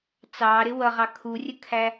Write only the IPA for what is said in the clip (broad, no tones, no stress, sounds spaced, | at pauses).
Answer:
t͡s ɑ ɾ ɪ w ʌ ʁ ɑ kʰ u rʲ ə kʰ æ